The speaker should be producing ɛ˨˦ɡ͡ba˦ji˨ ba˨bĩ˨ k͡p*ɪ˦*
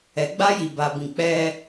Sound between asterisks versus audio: incorrect: ɛ˦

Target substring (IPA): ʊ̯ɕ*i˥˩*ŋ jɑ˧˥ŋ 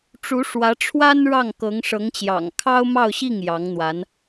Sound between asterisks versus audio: correct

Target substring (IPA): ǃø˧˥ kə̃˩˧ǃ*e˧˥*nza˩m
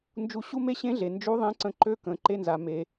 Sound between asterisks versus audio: incorrect: e˧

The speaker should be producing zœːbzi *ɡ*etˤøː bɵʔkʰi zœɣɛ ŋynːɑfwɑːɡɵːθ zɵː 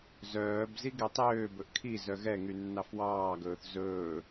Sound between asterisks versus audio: correct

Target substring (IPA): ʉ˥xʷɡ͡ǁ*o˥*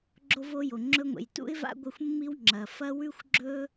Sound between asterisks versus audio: incorrect: ɵ˥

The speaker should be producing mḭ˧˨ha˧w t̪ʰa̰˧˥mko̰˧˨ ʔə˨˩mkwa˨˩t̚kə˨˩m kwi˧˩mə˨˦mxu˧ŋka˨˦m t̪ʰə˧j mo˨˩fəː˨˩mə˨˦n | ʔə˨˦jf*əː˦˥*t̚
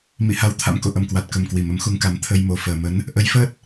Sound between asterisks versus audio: correct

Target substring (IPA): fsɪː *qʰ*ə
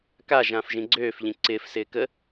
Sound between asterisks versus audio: incorrect: k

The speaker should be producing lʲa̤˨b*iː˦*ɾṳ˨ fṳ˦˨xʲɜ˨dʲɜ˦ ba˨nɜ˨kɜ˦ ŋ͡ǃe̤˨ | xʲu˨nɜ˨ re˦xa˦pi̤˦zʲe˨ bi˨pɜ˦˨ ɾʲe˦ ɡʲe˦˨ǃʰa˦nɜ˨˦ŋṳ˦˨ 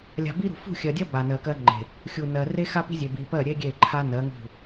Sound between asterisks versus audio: incorrect: i˦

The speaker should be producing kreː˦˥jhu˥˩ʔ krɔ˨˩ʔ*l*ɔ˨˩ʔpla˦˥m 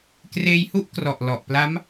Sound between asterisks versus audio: correct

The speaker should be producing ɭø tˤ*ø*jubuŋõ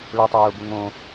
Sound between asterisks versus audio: correct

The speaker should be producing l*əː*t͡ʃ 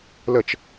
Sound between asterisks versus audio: incorrect: ə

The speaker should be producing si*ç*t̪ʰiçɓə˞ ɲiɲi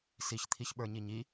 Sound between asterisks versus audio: correct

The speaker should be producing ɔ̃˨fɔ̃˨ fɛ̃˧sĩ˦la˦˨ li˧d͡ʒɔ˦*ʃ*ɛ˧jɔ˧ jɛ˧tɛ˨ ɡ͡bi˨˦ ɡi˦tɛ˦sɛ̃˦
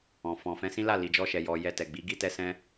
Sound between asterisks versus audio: correct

